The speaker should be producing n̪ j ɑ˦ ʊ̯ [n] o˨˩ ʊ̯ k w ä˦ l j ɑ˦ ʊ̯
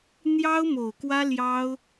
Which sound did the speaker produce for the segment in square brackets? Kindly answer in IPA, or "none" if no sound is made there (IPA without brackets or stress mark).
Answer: m